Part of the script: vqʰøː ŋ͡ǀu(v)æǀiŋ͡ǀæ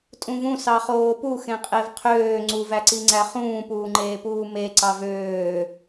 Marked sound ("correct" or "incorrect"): correct